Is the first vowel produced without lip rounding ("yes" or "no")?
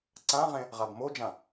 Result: yes